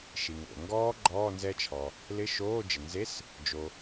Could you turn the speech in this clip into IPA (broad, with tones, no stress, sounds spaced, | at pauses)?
ʃ i˩ ŋ o̰˩ ŋ ɡ ɔː˦˥ ɡ͡ǃ ɔː˧˥˧ n z ɛ˦˥ t͡ʃʰ ɔ˩ | l ɪ˧˥˧ ʃ oː˧˥˧ d͡ʒ ɪ˩ n z e˧˥˧ s | d͡ʒ o˩